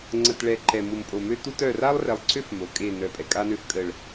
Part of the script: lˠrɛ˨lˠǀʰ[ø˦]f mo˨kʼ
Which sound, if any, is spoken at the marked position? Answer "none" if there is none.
ø˦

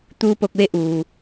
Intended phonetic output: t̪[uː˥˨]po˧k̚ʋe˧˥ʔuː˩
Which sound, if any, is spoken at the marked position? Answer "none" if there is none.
uː˧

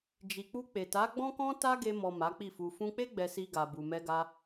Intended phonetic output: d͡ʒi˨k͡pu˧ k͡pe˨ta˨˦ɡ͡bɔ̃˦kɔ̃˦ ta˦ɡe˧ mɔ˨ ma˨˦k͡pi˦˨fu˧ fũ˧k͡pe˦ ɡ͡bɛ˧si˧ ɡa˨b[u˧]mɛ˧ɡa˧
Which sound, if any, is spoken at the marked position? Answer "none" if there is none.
u˨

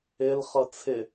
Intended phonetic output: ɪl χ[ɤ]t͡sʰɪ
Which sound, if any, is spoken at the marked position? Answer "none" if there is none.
ɤ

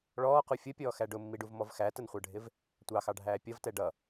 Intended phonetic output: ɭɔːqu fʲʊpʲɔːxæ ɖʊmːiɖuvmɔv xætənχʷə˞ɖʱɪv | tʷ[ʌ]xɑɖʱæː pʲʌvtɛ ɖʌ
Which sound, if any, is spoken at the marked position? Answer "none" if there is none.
ɑ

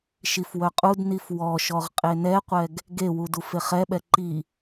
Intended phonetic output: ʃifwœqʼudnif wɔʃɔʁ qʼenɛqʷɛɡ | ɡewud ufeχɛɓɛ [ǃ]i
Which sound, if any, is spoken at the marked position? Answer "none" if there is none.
ǃ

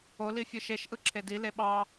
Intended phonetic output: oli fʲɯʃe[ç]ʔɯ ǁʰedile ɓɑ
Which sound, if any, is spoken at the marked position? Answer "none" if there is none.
ʃ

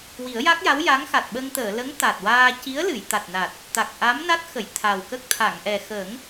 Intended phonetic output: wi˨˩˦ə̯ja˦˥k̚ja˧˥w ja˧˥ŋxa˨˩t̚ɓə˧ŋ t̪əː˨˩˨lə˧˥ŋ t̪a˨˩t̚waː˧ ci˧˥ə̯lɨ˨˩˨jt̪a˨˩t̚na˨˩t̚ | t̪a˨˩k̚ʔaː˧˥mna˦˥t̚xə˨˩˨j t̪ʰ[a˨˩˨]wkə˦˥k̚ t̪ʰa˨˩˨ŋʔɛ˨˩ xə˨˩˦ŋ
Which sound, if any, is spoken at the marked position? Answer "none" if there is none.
a˨˩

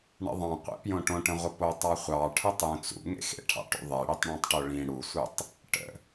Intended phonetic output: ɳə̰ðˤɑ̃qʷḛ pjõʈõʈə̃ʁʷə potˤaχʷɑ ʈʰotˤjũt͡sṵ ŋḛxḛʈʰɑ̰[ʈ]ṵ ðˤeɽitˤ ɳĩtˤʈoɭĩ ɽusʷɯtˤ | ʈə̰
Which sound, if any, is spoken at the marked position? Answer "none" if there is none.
ʈ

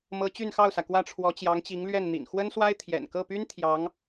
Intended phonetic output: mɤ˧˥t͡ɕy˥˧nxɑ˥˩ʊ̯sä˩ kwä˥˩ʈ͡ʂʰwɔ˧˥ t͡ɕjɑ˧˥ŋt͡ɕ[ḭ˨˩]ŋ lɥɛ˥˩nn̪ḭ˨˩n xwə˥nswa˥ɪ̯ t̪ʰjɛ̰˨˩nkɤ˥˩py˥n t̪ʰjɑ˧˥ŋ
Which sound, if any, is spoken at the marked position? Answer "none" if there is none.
i˧˥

